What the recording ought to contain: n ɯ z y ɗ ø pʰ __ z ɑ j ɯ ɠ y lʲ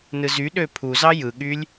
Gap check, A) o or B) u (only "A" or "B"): B